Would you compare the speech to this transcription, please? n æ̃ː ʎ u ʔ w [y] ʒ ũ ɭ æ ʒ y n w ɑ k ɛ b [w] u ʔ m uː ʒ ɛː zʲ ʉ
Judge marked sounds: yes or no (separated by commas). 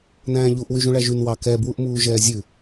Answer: yes, yes